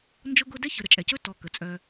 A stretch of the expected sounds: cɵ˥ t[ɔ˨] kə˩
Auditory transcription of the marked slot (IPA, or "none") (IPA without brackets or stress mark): ɔ˨